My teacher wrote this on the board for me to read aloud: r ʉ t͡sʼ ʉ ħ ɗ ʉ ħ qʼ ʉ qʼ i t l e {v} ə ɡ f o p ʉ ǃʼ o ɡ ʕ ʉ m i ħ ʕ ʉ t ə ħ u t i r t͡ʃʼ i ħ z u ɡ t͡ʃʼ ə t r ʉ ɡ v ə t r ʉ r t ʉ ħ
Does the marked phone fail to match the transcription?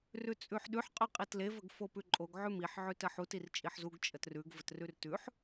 no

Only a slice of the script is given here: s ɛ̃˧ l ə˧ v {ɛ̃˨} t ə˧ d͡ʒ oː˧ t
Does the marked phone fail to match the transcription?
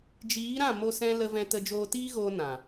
yes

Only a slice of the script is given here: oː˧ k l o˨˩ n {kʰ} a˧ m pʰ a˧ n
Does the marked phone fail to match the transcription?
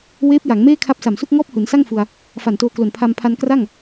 yes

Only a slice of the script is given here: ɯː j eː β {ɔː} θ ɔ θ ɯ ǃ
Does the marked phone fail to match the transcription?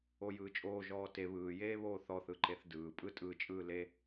yes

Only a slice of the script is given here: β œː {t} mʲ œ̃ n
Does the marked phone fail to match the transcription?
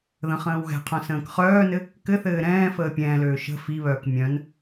yes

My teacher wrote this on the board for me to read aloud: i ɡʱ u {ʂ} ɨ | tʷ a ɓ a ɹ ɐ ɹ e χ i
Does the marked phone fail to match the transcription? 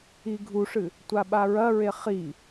no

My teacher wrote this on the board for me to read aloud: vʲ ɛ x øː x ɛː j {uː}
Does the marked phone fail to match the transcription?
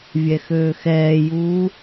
no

